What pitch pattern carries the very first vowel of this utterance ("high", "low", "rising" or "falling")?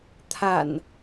low